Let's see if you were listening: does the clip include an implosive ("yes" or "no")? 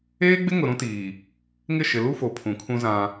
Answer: no